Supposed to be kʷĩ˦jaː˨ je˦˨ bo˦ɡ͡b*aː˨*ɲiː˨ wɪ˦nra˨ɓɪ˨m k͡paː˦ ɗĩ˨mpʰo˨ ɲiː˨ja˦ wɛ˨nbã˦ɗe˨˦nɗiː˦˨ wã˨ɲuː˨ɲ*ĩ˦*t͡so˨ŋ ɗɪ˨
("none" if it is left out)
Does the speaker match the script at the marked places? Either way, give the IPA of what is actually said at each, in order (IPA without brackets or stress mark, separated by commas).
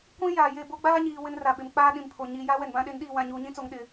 aː˦, ĩ˦